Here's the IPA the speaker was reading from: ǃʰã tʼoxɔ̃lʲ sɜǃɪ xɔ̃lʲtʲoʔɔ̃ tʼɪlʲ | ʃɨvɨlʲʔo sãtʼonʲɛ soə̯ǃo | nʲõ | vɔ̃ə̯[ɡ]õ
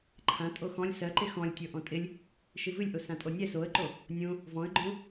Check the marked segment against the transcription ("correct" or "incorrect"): incorrect